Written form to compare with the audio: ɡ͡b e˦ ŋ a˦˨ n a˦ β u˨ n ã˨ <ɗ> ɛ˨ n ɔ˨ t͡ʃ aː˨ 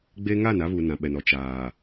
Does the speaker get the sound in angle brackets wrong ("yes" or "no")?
yes